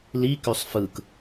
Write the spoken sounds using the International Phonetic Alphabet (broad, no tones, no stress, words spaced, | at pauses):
likøsˤ fɯk